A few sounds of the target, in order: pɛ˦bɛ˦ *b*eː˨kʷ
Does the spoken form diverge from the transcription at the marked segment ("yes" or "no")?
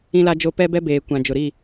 no